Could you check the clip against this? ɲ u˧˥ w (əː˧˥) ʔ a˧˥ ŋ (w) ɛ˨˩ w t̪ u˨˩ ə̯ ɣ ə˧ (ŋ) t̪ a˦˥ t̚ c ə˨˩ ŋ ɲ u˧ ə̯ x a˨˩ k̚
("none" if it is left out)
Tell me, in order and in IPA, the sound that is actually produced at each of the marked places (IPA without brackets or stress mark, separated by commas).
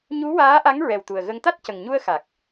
aː˧˥, ɹ, ŋ